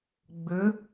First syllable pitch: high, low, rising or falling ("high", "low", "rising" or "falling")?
rising